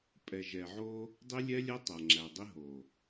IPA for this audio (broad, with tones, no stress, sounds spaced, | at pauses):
pʼ ɛ˨ ʒ ɛ˨ ʕ o˦ | dˤ i˦ lʲ ɛ˦ lʲ ɛ˦ tˤ æ˨ ŋ͡ǁ æ˨ dˤ i˦ ɦ o˨